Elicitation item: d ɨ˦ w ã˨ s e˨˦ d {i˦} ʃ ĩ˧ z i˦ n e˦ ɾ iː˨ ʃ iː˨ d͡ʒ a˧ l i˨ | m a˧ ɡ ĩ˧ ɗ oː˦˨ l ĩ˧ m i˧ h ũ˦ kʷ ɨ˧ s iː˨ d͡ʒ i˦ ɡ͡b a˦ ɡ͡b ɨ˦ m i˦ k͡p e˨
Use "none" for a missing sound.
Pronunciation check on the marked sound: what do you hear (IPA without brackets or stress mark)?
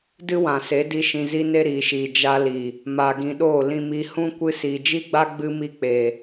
i˦